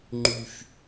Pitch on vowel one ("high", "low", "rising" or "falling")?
high